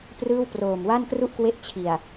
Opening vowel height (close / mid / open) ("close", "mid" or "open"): close